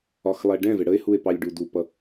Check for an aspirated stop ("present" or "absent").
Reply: absent